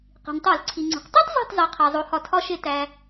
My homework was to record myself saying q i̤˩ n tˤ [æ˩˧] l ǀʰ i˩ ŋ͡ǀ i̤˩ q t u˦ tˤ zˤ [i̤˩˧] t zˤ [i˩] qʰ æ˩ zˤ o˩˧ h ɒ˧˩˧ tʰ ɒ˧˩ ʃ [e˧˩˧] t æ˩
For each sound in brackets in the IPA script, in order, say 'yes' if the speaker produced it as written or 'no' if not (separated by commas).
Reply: no, no, yes, yes